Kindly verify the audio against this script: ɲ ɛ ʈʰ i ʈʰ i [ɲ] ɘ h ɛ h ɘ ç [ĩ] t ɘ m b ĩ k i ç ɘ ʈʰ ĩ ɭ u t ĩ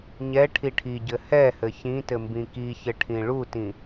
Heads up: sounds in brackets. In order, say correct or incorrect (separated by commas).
incorrect, correct